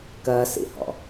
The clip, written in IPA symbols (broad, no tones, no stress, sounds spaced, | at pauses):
k ɜ s ḭ h ɔ̰